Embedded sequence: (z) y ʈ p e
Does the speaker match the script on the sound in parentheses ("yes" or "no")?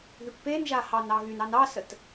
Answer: no